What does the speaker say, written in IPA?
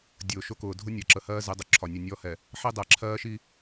dʲ ʊː˨ ʃ ʊ˦ k ʊː˨ dʱ ʊ˦ nʲ ɜ˨ ǁ ə˨ h ɜː˦ z ɪ˨˦ dˤ ʊ˨ ǁʰ ɒ˨ nʲ ʊ˨ nʲ ɔ˦ h ɛ˨ | ħ i˦ dˤ æ˨ ǁʰ ɜː˦ ʃ i˦

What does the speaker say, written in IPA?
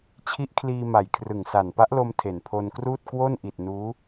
t͡ɕʰ i˦˥ ʔ kʰ l iː˧ m a˨˩ j kʰ r ɯ˨˩ ŋ s a˨˩ n p a˦˥ ʔ l o˧ m tʰ e˨˩ n pʰ o˧ n k r uː˥˩ t̚ k w o˥˩ n ʔ i˨˩ t̚ n uː˦˥

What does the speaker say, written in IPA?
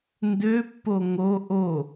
n d ø pː o ŋ o ʔ o

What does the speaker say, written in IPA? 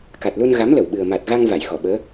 k a˨˩ t̚ l u˧ n ɣ a˨˦ m l ə˧˩ w ɓ ɨ˨˩ ə̯ m a˨˩ t̚ ɣ a˧ ŋ v a˧˩ j x ɔ˧˩ ɓ əː˨˦

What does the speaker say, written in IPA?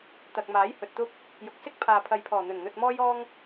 t̪ ɐ˨ k̚ m aː˨˥ j h ɵ˨ t̚ t̪ ʊ˥ k̚ | j ʊ˨ k̚ s ɪ˥ k̚ pʰ aː˨ pʰ ɐ˨ j pʰ ɔː˨˩ n̪ ɵ˨˩ n n̪ ɵ˧ t̚ m ɔː˥ j ɔː˥ ŋ

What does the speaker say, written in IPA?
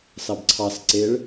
s ɑ b ǀʰ ɑ s ǀ e ɭ

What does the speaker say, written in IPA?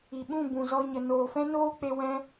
i˨ ɓ ũ˦˨ b ũ˨ z ɔ˧ ɲ ə˨ n oː˨ f ɛ̃˦ n oː˦ k͡p e˧ w ɛ̃˧

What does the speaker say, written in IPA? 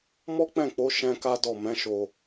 m ɔ˦ k͡p ɛ̃˦˨ k͡p o˨˦ ʃ ɛ̃˧ k a˦ d ɔ˦˨ m ɛ̃˨˦ ʃ o˧

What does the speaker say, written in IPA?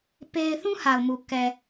p e˦ ɪ̯ θ ũ˦ h a˨ ʊ̯ m u˨ k ɛ˨

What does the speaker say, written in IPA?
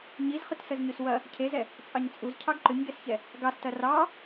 ɲ i z χ ʏ t s ə z ɲ ʉ s w ɐ | cʰ e z ɛ | t͡sʼ ɑ ɲ t͡sʼ u z cʰ ɑ ɡ ǃ ʏ ɲ ɡ ɛ s ç ɛ | ɡ ɑ s t ɐ r ɑ

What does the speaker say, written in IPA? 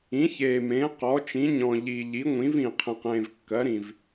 ĩ˩˥ ç e˨˩ m ẽ˩˥ q ɔ˩˥ t͡ʃ ĩ˩˥ ɲ ɔ̃˨˩ ʎ i˨˩ ʎ i˩˥ ŋʷ ĩ˩˥ v ĩ˨˩ qʰ ẽ˨˩ q ẽ˨˩ v kː ɜ˩˥ ɾ ĩ˨˩ v

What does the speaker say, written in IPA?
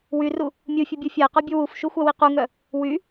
w y r u | mʲ u fʲ u bʲ u fʲ a ɪ̯ q ɔ bʲ u w u f ʃ u xʷ a w i q u ŋ œ | w y

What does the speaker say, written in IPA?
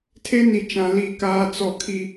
tʰ e˦ n i˨ t͡ʃ ã˨ l i˦ k aː˦ t͡s ɔ˦˨ kʰ i˦

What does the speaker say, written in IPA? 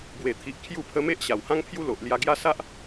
b w e˨˩ t̪ʰ i˨ ʔ kʰ j u˥˧ pʰ ə˦ m e˦ ʔ ɕ a˨˩ w h ã˦ ŋ pʰ j u˦ l o˨ ʔ l j a˧ ɡ j a˦ s a˦ ʔ

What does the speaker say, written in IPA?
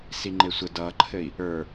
s i ŋ͡ǃ e sʷ ə d ʌ ǃʰ ɘ i̯ | ə˞

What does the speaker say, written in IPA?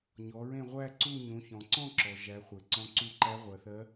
ɲ ɔ˩˧ ɹ ẽ˦˨ ʁʷ æ˦˨ ǀ u˦˨ ɲ ũ˩˧ ç ɔ̃˩ ǀ ɔ̃˦˨ ǁ ɔ˩ ʒ æ˩˧ χʷ e˩˧ ǀ ɔ̃˧˥ ǀ u˦˨ ǃ æ˧˥ ʁʷ ɜ˩ θ ɜ˧˥

